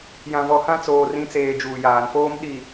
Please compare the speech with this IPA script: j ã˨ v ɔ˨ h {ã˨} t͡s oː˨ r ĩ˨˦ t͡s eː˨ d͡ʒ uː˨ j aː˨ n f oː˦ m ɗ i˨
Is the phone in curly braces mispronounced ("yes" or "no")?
yes